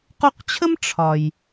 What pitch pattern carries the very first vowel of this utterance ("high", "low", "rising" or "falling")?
high